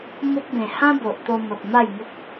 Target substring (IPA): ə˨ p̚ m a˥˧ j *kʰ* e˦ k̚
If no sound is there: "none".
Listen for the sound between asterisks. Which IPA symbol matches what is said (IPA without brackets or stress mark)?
ŋ